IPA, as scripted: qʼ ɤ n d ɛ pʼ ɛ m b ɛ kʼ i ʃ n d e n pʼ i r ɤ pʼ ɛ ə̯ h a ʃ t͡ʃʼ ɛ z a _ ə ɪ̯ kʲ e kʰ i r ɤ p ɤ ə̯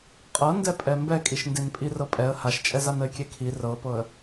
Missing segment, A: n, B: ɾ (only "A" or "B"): A